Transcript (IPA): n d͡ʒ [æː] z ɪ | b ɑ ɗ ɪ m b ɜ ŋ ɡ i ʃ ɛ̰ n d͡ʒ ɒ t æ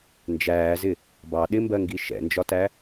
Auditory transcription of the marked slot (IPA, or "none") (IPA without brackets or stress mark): æː